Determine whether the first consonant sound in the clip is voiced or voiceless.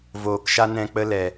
voiced